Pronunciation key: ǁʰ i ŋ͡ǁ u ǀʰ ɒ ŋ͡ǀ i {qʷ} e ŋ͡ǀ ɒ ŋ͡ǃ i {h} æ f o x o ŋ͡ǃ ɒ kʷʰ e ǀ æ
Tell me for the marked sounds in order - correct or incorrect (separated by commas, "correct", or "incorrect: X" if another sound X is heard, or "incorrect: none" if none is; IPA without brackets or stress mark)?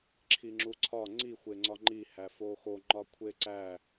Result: incorrect: xʷ, correct